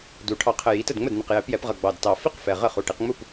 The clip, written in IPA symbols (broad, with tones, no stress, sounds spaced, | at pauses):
d u˨˩ ʈʰ ɑ˨˩ qʰ ə˨˩ j i˩˧ t ə˥˩ d ŋ͡m ə˥˩ d n ə˨˩ q j ɛ˩˧ p j ɛ˩˧ p ʁ ʌ˨˩ ɡ͡b ɑ˨˩ d t ɑ˨˩ f i˥˩ q f ɛ˨˩ ʁ ə˥˩ χ u˨˩ ʈ i˩˧ q ŋ͡m u˥˩ p